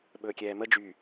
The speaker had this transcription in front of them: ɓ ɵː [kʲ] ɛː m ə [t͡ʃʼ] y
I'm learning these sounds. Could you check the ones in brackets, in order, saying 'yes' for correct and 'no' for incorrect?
yes, no

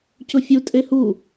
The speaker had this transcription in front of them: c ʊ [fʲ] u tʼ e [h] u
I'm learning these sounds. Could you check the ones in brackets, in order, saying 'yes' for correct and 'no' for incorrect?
yes, yes

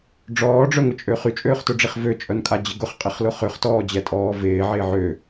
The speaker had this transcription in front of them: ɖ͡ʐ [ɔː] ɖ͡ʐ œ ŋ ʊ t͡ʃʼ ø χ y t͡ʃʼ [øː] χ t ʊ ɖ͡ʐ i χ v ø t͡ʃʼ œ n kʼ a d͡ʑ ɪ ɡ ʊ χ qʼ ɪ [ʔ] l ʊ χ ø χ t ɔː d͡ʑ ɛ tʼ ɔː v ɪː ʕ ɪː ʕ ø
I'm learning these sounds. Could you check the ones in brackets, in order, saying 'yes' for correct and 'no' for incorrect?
yes, yes, no

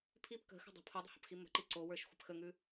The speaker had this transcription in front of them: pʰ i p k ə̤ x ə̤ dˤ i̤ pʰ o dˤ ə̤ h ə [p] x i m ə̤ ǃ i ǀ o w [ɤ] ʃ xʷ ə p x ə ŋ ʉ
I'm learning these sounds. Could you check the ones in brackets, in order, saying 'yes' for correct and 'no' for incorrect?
yes, no

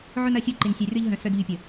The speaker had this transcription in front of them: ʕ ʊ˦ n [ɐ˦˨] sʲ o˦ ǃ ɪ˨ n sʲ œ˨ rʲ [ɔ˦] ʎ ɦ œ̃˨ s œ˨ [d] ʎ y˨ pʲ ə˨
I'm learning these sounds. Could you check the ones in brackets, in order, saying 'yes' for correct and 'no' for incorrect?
yes, yes, yes

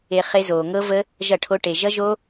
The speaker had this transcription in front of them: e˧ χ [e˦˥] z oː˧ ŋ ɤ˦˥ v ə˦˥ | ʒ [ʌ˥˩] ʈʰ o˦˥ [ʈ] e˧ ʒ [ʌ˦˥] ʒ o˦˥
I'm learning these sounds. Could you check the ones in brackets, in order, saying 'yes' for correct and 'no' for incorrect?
yes, yes, yes, yes

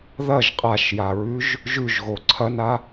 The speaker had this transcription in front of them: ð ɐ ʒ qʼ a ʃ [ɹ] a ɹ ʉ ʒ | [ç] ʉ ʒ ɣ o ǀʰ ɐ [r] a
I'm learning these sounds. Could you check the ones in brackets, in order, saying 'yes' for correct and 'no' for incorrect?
no, no, no

